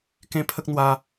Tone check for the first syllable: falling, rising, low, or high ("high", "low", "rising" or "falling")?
high